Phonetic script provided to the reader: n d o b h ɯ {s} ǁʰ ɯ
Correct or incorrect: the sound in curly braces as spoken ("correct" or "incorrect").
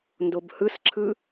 correct